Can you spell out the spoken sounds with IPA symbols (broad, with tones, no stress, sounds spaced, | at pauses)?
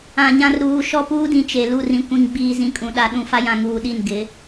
ã˨ ɲ ã˨ r ɾ uː˨ ʃ ɔ˦ p uː˦ d ĩ˨ t͡ʃ e˨ l u˦˨ r ĩ˨ kʷ ĩ˨ ŋ ɡ͡b iː˨ z ĩ˨ kʼ ũ˨ ɗ a˨ ɗ ũ˦ f a˦ j ã˨ ŋ uː˨ ɗ i˦˨ n ɡ ɪ˨˦